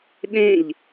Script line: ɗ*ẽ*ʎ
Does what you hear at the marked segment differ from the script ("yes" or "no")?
no